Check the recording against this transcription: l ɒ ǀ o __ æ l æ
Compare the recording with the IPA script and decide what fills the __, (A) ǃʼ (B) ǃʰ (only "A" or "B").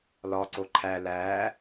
B